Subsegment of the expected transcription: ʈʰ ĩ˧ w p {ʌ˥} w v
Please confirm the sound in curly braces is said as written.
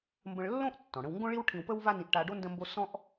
no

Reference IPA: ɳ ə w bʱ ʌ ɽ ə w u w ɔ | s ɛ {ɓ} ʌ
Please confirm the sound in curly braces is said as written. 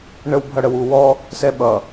yes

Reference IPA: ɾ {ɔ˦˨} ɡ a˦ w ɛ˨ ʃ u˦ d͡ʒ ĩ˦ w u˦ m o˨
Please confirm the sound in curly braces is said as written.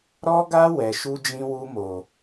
no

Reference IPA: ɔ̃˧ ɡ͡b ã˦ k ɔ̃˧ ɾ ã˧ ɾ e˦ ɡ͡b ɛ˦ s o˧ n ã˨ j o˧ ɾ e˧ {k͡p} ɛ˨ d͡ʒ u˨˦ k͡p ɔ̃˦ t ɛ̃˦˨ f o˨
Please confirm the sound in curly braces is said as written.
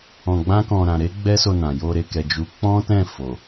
no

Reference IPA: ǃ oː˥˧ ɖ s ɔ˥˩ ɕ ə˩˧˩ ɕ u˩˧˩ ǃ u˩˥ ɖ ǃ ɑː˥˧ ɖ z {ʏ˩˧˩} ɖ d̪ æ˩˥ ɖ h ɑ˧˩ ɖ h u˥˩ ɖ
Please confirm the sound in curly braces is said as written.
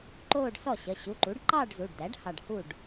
no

